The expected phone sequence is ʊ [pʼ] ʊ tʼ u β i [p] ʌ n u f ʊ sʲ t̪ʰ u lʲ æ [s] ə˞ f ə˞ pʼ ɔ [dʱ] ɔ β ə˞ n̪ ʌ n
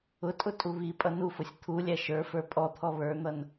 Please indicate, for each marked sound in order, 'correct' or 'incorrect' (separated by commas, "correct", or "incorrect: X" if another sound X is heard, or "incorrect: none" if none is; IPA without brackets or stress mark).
incorrect: tʼ, incorrect: pʼ, incorrect: ʃ, incorrect: t̪ʰ